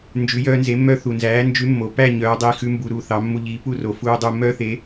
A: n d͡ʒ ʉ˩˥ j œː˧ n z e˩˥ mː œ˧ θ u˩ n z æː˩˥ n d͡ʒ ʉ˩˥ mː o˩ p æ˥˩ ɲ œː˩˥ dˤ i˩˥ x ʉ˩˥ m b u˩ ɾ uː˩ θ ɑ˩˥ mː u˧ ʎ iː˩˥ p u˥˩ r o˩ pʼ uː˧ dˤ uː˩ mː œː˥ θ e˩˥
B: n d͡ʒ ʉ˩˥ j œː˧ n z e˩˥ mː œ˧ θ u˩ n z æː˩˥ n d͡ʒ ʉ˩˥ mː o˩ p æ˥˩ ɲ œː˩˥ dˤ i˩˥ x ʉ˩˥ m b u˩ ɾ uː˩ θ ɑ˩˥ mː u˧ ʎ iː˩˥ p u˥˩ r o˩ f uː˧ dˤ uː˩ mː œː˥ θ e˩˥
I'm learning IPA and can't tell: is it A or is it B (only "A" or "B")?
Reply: B